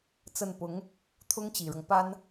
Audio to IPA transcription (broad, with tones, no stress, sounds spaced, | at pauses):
t͡s ə˥˩ n p ʊ˧˥ ŋ | t̪ʰ ʊ˥ ŋ t͡ɕ i˨˩ ɻ ɤ˦ ŋ p a˥ n